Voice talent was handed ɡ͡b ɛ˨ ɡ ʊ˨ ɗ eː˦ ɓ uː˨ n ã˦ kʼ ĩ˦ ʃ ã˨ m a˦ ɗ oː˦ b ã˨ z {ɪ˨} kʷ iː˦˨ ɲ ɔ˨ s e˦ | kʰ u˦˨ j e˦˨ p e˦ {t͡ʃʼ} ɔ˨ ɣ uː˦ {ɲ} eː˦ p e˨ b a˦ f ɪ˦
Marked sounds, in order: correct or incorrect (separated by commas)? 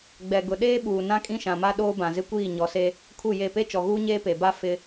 incorrect, incorrect, correct